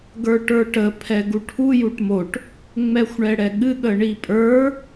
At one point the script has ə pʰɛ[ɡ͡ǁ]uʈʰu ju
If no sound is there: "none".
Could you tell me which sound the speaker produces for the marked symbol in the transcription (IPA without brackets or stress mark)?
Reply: ɡ